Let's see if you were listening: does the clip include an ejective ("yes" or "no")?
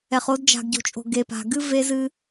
yes